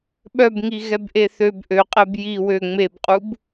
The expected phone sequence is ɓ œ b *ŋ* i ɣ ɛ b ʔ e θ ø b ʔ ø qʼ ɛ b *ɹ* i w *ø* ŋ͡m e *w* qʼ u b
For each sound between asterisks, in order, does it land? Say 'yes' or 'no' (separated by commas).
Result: yes, no, yes, no